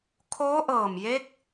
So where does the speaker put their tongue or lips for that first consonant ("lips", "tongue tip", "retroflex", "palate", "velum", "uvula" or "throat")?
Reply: velum